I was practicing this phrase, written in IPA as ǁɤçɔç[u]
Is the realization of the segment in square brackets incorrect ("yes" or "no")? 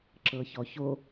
yes